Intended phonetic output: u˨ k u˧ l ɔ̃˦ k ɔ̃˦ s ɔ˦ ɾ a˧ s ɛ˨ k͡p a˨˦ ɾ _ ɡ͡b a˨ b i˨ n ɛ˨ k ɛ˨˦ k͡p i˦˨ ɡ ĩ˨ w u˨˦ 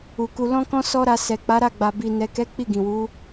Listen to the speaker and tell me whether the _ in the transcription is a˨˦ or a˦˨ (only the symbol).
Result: a˦˨